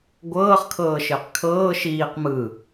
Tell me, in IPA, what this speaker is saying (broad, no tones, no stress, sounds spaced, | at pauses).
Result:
ɡʷ ɤː χ kʰ ɤː ʃ ɪː q kʰ ɤː ʃ iː q m ɯ